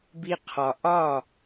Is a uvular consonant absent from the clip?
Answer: no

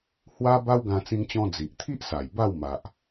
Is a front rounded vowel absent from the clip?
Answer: yes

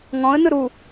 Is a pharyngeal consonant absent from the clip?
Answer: yes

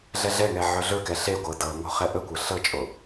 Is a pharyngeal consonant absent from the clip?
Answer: no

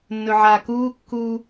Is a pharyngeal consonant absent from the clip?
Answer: no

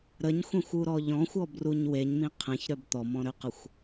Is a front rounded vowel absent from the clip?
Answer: no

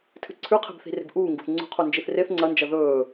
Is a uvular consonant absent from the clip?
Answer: no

